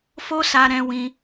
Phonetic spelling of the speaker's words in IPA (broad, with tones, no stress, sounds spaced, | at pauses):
f o˦ s a˧ ɾ ɛ̃˧ w ĩ˧